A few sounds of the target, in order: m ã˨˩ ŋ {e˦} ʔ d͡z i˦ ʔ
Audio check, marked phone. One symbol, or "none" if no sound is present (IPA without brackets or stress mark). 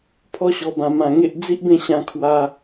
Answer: e˦